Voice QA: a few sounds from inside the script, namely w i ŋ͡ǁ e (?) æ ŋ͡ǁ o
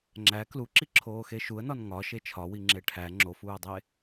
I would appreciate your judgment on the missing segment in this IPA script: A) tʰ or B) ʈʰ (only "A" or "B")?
B